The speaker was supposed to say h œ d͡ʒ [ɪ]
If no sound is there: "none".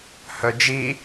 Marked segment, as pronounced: i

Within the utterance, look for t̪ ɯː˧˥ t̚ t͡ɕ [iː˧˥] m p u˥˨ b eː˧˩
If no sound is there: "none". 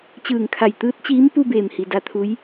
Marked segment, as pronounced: iː˧˥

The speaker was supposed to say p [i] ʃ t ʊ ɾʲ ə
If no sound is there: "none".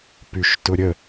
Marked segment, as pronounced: y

